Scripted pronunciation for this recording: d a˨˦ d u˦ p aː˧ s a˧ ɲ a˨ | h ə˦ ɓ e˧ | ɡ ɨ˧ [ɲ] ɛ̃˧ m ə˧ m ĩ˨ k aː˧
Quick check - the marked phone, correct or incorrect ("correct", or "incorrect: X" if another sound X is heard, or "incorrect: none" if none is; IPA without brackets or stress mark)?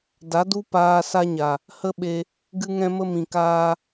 incorrect: ŋ